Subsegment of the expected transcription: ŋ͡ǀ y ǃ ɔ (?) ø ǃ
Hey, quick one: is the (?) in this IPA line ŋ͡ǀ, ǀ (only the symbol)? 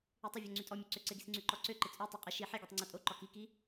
ǀ